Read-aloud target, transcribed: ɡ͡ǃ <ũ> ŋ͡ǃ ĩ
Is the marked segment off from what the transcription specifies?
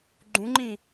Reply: no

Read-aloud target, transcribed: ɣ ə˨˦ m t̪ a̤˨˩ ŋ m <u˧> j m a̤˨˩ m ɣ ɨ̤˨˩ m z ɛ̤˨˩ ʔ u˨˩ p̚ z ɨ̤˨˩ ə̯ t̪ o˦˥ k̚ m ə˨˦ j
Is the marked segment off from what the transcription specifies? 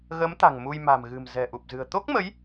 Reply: no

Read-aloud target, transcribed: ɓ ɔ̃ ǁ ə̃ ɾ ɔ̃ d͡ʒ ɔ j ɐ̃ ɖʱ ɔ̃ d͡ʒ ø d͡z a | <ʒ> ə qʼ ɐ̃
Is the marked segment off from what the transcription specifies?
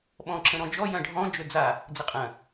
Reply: yes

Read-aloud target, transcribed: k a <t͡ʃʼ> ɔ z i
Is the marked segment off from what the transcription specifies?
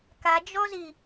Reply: yes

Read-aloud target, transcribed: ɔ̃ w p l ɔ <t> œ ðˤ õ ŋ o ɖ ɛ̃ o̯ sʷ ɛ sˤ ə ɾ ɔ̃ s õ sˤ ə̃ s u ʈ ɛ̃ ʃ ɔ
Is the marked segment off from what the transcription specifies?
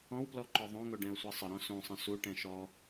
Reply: yes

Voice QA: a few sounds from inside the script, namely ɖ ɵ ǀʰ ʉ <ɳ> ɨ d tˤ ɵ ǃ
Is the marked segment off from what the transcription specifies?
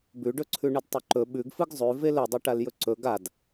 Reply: no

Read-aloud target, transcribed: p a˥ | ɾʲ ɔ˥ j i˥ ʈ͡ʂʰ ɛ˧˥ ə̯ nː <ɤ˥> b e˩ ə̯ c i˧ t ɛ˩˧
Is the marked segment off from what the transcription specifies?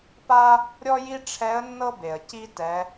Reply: no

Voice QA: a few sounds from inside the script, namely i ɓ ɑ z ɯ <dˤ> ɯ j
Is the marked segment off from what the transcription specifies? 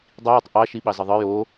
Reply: yes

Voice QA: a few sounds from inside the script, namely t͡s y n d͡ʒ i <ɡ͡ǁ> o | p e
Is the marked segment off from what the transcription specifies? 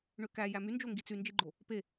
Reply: yes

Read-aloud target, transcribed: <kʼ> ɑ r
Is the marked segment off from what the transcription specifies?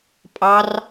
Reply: yes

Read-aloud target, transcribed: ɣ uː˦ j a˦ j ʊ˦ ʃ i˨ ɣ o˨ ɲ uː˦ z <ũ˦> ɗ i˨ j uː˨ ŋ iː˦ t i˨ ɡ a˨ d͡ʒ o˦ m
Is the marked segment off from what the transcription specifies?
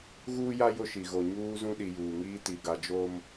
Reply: no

